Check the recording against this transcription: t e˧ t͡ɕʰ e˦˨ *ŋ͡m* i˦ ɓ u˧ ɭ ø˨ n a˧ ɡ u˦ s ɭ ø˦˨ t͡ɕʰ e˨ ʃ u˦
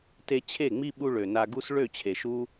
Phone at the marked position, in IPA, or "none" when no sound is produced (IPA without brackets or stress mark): ŋ͡m